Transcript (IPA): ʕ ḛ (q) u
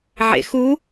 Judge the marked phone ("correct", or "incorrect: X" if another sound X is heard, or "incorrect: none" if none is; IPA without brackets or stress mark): incorrect: x